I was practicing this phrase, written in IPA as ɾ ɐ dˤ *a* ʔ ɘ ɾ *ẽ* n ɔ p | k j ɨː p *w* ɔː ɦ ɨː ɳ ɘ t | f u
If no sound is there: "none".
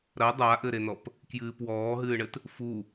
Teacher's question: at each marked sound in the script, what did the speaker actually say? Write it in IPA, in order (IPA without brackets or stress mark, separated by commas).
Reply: a, e, w